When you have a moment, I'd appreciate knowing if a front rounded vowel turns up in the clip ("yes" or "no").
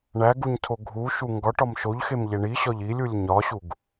no